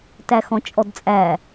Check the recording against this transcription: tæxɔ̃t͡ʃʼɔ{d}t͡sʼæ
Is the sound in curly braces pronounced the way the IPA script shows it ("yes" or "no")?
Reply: yes